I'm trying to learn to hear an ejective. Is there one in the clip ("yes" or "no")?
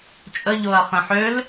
yes